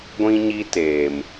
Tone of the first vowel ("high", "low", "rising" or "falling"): high